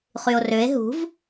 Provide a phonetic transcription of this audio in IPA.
χ y o̯ r ø e̯ ɦ ṳ v

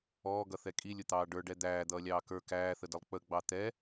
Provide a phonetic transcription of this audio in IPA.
ɔː ɡ ʌ θ ɛ kʼ i lʲ ʊ t̪ ɑː ɖ ə˞ ɖ ɛ d̪ æː d̪ ʌː lʲ ɑː k ə˞ k æː θ ə d ə lˠ k͡p ə ɡ͡b ɑ t̪ ɛ

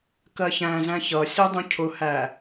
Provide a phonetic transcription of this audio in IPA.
k ɜ ç æ̃ z æ̃ ç ʌ sʲ u dˤ ũ cʰ ʊ h æ

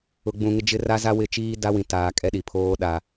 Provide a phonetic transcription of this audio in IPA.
ʊ˨ ɡ͡b ũ˨ ŋ ɪ˦ d͡ʒ ɪ˦ r a˦ z a˦ w ɪ˦˨ t͡ʃ iː˦ d a˦ w ĩ˨ t aː˨ kʼ ɛ˦ ɗ i˨ pʰ oː˦ ɗ a˨

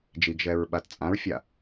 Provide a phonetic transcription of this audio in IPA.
d͡ʒ i ɡ ʒ ɛ ɹ ɓ a t t͡sʼ ã ɹ fʲ a

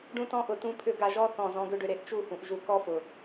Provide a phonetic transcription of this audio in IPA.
ɖ ũ˧ t ɔ̃˧ ʔ ʊ˨ t ũ˦ pʰ ʏ˦ ɡ a˧ ʒ ɔ˦ θ ɔ̃˨ z ɔ̃˧ ɡ ʏ˦ ɖ ʏ˧ ɾ e˨ ʔ t͡ʃ u˦˨ h ũ˨ ʔ ʒ u˨ k ɔ˦ f ʊ˨

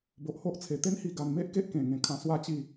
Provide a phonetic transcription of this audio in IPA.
b o˨ ʔ h o˦ ʔ t͡sʰ e˨˩ t̪ e˦ n h i˧ ɡ a˧ n m e˦ ʔ k e˦ ʔ k ẽ˨˩ ŋ ẽ˧ kʰ ã˧ s w a˦ t͡ɕ i˥˧

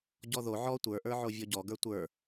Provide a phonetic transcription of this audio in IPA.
ɟ ɔ ð o ʕ ɔ tʷ ə˞ ʔ ə˞ ʕ o vʲ ɔ ɟ ɔ ɡ ə˞ tʷ ə˞

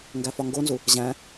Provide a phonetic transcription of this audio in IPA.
ŋ ɡ æ f ɒ ŋ ɡ o n z u | ʑ æ̃

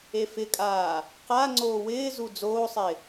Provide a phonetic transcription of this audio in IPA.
e f ɪ kʼ aː | q a ŋ͡ǀ oː w ɪː z u d͡z oː sˤ ɪː

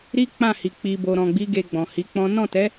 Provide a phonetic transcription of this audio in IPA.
ɾ i˦ k͡p ã˦˨ h i˨ k͡p i˨ b o˨ ɾ ɔ̃˨ ɡ͡b i˨˦ ɡ e˧ ɡ͡b ɔ̃˨ h i˨˦ k͡p ɔ̃˦ n ɔ̃˦˨ t ɛ˨˦

